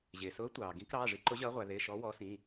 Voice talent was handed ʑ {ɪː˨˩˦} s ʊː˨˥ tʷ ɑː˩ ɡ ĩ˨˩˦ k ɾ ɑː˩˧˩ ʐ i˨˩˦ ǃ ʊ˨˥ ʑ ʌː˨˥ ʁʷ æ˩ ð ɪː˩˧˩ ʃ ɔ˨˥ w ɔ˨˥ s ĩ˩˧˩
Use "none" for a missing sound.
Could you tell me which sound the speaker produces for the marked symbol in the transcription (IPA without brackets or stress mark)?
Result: ɪː˩